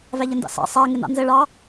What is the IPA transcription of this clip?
v æ ʎ ə n d ɑ̰ s ɑ̰ sˤ æ ŋ ɪ n ɑ̰ n z ɘ ɭ ɑ

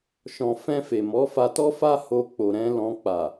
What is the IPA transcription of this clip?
ʃ ɔ̃˨ f ɛ̃˧ f e˨ m ɔ˨˦ f a˧ t ɔ˦ f a˦ h o˧ k͡p o˨ ɾ ɛ̃˨˦ l ɔ̃˧ k͡p a˨

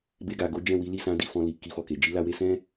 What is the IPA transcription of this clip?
b e˧ ɡ a˨ ɡ o˨˦ d͡ʒ ɛ̃˦˨ w i˨˦ l i˦˨ s ã˨˦ d i˧ f ɔ̃˧ l i˨ k i˧ f ɔ˨ k e˨ d͡ʒ i˨˦ l a˧ w e˧ s ɛ̃˦

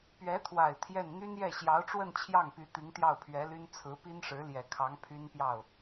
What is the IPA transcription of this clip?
p ɥ ɛ˧˥ t̪ʰ w a˨˩ ɪ̯ t̪ʰ j ɛ˥˩ n n̪ y˥ n j ɛ˥˩ ɕ j ɑ˧˥ ʊ̯ ʈ͡ʂ w ə˥˧ n t͡ɕʰ j ɑ˥˩ ŋ p y˧˥ t̪ i˧˥ ŋ t̪ j ɑ˥˩ ʊ̯ pʰ ɥ ɛ˧˥ l y˥ n t͡sʰ ɹ̩˧˥ p i˥ n ʂ ɻ̩˧˥ l j ɛ˨˩ kʰ ɑ˧˥ ŋ pʰ y˥ n p j ɑ˥˩ ʊ̯

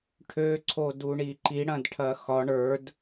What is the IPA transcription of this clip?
ʈʰ ø ǀʰ o d u ɳ i ǃ i ɽ ɐ̃ d ʈʰ ɐ x ɒ ɳ ə˞ d

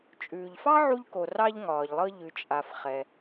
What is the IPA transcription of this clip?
t͡ʃʼ ʉː˩ ʎ f ɑ˥ ʕ u˧ ʎ k o˩ r ɑ˧ ʎ ŋ ɒː˩ ʎ lˠ ɤ˧ ʎ ʉ˩ t͡ʃʼ a˩ f χ ɛ˩

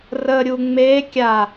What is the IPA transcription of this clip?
r ə ɾʲ u ŋ͡m e kʲ a

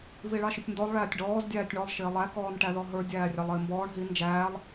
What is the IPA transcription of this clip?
v i ɭ ɑ ʃ ʊ tʲ n d ɔ lˠ ɭ æː tʲ ɖ ɔː z dʲ æː tʲ ɳ ɔ lˠ ʃ ɪː lˠ æ k ɔː n ʈ æ ð ɔ ɦ ə˞ dʲ æː rʲ ɑ lˠ ɪː m b ɔː ɳ ɦ i n d͡ʒ æː lˠ

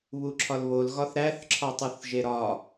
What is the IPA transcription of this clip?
β u ǁʰ ɒ l β o l ɣ ɒ θ ɾ æ θ ǁʰ ɒ tˤ u θ ʒ e ɾ ɒ

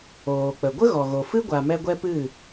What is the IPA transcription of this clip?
oː˨ k͡p ə˨ ɡʷ ə˦ ɣ ɔ˨ ɣ o˨ f ɨ˦ ɡʷ a˧ m ɛ˦ ɡʷ ɛ˦ p ɨ˦˨

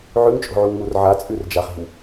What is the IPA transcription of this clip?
ʕ ʉ ŋ t͡ʃʼ o̤ ʕ u ŋ m u r ʕ a t͡sʼ ʉ r d͡ʒ a χ i̤ w

